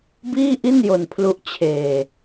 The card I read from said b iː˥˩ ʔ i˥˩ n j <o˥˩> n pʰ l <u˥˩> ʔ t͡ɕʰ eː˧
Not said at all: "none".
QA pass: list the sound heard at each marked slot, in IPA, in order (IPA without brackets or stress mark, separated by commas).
o˧, u˦˥